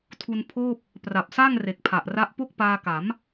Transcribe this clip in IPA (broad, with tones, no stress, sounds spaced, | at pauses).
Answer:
tʰ u˧ n pʰ oː˥˩ p̚ | p r a˨˩ p̚ s aː˥˩ ŋ r e˨˩ k̚ pʰ a˨˩ ʔ r a˦˥ ʔ p o˥˩ k̚ p aː˧ k a˩˦ m